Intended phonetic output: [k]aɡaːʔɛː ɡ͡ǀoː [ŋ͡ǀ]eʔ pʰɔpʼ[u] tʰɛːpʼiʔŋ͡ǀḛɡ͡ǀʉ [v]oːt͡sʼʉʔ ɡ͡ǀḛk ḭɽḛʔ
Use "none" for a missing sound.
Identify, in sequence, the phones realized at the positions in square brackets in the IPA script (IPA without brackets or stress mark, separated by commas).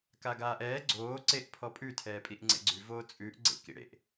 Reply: k, ǀ, ʉ, v